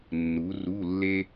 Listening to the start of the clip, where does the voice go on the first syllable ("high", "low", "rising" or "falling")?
rising